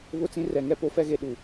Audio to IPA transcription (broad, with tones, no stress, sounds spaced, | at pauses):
β ʊ˦ t͡s ĩ˦ r ɛ˨ ŋ ɛ˦ p o˦ f ɛ˦ ɣ e˨ ɗ u˨